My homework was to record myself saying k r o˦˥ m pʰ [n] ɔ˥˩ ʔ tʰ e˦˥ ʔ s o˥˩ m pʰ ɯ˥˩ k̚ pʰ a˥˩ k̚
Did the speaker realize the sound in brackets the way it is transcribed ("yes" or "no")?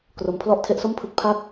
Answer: no